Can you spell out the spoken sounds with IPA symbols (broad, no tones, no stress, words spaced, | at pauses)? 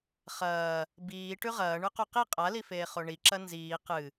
χɐː | biː ʈʉʁɐːɳʉ quqi qʼalifeː χoɳiǁɐ nziː qɨ